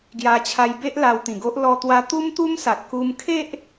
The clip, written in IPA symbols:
ɡ j a˧ t͡ɕʰ a˧ j b e˦ ʔ l a˧ w t̪ ĩ˨˩ ɡ o˦ ʔ l ɔ˧ t̪ w a˧ t̪ u˦ m t̪ u˦ m s a˨ t̚ k u˧ m kʰ e˦ ʔ

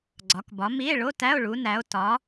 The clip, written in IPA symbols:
ɡ͡ǀ ɒ˨˦ k b ɒ˨˦ m i˧˥˧ e̯ ɭ o˧˥˧ t æ˧˥˧ o̯ ɭ u˨˦ n æ˨˦ o̯ t ɒ˨˦

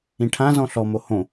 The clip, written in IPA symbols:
ĩ ʈʰ ã z ɔ̃ ɬ ɔ m o h õ

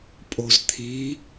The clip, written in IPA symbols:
pʼ o z t̪ʰ i

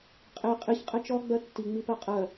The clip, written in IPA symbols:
qʼ e qʼ i ç qʼ ɛ t͡ʃ ɔ ɡ͡b ɜ tː i ŋ͡m i p ɜ qʼ ɜ

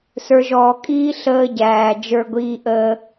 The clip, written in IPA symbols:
s ə˞˧ ʒ ɔː˧ kʼ iː˦ ɬ əː˦ ɟ æː˧ d͡ʒ ə˞˦ ɡʷ iː˦ ʔ əː˦

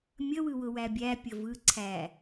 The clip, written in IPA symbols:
mʲ ə w ɯ w ʊ w æ bʲ æ pʲ ə v ɯ ǀʰ æ

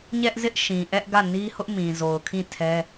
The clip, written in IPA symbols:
ɲ ɛ˦ ʔ z ɪ˦ ʔ ʃ ĩ˨ ʔ ɛ˦ ʔ ɡ ä˦˨ n i˦ h ʊ˦ ʔ m ĩ˨ z o˨ ʊ̯ kʰ ĩ˦˨ tʰ ɛ˦

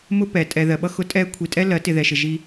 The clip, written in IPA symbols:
m ʊ˦ p ɛ˨ tʼ ɛ˨ ð ɜ˨ ɓ ʌ˦ x ʊ˦ tʼ ɛː˦ kʷʰ i˨ tʼ ɛ˦ l ɜ˨˦ t ɪ˨ ð ɛ˨ ʃ ɪ˨ ʒ i˦

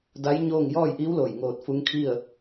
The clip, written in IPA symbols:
d a˧˥ j ɲ oː˥˨ ŋ j ɔː˥˨ j ʔ iː˧˥ w l oː˧˩ j ŋ oː˧ t̚ f u˧˥ ŋ kʰ i˥˨ ə̯

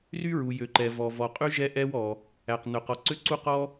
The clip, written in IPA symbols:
r y˥ ɹ u˩ j ø˩ ǃ ɛ˩ v ɔ˩ v ɔ˩ qʼ y˥ ʒ ɛ˥ ʔ ɛ˥ w ɔ˩ | æ˩ q n ɵ˩ q ɔ˩ ǀ ø˥ ǀ u˥ q ɔ˥

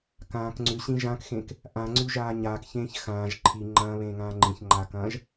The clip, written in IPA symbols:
k ãː k ŋ͡ǀ ʉ ɕ ĩ ʒ ã k x ẽ k | ʔ ã ŋ͡ǀ ʉ ʒ aː ɲ aː k ç ẽː ç x ãː ʒ ǃʰ i ŋ͡ǃ ɐ̃ː β ẽː ŋ ãː ŋ͡ǃ ĩ ç ŋ͡ǃ aː k ɐ̃ː ʒ

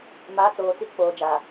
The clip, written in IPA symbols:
m aː˨˦ t͡s oː˨ t͡s i˨˦ k͡p oː˨ d͡ʒ aː˨

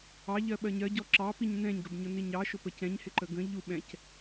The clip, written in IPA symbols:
ɑ ʎ ɜ ɓ ɜ ɲ ɜ ɟ ɔ ǁ ɑ p i ɲ n ɛ̃ ɲ ɡ ə b ɲ ʊ n i ɲ ɑ ʃ ʊ p ə c ɛ̃ ɲ h ɪ ǃ ə ɡ ə̃ ʎ u ɓ ɛ̃ c

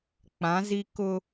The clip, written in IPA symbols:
k͡p ã˨˦ z i˦ k ʊ˦

